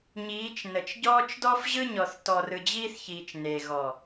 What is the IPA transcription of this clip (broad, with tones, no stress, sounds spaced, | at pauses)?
ɲ iː˨˦ t͡ʃ n ə˨ t͡ʃ ɟ ɔː˦ t͡ʃ d ɔ˦ f ʑ ɯ˦ ɲ ɔ˨ θ t ɔ˨ r ɯ˨ d͡ʑ iː˦ θ ç iː˨ t͡ʃ n e˨ ɣ ɔ˨